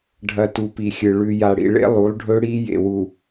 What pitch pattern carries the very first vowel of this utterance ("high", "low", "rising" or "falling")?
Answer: low